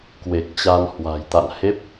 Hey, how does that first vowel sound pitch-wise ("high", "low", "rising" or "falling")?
low